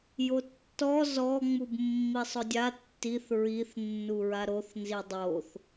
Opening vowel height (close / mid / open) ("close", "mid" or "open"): mid